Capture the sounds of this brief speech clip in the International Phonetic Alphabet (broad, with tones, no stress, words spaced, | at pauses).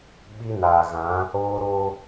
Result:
ɓi˦naː˨ɣã˨˦ | oː˦ɾo˦